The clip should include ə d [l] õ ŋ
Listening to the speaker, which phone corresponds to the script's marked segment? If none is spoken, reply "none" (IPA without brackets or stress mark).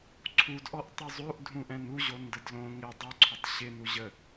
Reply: l